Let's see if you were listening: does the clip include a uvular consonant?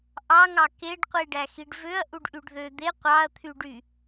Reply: yes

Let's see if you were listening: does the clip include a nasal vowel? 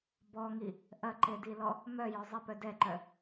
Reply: no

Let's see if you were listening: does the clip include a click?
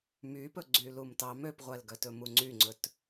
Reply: yes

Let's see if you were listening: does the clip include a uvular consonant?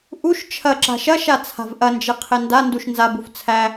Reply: yes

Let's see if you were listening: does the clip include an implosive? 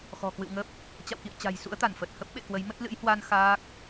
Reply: yes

